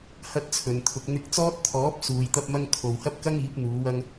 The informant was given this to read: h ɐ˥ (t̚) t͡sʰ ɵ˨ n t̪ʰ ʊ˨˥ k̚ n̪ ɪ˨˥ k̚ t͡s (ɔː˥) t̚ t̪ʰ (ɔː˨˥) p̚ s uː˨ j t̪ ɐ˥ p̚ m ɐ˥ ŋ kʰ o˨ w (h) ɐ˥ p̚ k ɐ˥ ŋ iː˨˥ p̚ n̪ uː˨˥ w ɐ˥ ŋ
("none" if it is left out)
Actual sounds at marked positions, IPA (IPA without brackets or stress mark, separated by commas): t̚, ɔː˥, ɔː˨˥, h